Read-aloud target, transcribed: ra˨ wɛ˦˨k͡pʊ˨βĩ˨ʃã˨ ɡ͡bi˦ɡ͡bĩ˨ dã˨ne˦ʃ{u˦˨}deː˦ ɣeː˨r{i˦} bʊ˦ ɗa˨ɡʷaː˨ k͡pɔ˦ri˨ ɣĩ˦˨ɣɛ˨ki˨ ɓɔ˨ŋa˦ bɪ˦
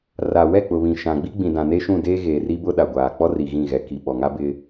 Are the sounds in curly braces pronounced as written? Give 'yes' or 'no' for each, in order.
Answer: no, yes

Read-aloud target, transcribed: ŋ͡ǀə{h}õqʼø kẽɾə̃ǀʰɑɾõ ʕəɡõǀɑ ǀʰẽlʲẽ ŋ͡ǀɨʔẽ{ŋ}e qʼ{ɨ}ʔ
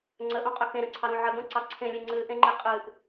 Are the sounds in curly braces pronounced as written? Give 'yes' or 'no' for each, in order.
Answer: no, no, yes

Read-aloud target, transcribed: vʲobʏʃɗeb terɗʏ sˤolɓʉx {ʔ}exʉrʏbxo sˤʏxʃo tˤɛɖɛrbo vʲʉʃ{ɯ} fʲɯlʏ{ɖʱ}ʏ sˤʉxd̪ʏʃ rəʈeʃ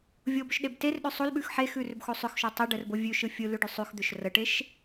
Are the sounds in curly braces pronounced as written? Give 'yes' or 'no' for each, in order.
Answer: no, yes, no

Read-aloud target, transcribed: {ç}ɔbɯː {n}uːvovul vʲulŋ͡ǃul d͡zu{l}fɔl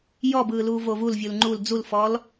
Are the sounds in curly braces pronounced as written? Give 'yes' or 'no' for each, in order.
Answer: no, no, yes

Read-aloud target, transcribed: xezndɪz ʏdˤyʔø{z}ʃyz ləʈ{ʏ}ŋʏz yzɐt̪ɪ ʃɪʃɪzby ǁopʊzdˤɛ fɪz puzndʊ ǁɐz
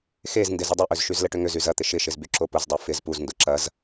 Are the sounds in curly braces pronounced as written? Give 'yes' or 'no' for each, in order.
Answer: yes, yes

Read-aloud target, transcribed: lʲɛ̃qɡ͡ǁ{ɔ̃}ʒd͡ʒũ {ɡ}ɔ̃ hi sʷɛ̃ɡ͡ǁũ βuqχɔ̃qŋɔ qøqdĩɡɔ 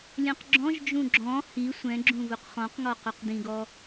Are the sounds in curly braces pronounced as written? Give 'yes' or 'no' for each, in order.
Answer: yes, no

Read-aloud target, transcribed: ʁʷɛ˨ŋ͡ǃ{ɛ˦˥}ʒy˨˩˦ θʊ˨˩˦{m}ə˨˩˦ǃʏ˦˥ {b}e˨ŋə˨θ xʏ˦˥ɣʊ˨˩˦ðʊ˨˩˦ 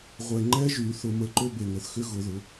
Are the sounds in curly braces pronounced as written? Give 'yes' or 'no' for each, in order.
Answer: yes, yes, yes

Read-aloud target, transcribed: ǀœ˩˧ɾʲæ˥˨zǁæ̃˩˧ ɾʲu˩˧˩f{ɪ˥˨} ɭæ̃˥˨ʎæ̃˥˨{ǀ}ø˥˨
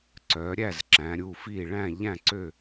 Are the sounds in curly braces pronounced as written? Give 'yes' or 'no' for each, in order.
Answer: no, yes

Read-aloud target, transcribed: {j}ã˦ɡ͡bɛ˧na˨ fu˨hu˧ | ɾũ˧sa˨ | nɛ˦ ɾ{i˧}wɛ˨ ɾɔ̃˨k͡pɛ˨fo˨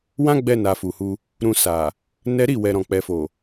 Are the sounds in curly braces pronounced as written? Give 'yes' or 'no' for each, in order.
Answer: no, no

